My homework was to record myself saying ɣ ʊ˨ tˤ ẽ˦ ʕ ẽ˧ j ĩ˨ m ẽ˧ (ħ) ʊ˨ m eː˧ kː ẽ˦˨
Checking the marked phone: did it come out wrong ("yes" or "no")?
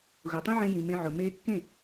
yes